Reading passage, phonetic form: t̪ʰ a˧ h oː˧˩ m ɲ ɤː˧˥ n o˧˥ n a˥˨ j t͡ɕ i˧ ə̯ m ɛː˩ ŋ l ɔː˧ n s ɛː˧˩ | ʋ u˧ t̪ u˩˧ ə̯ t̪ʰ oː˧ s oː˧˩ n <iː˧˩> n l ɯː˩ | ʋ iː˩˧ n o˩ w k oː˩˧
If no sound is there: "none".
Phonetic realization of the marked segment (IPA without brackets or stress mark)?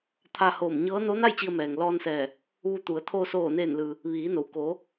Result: eː˧˩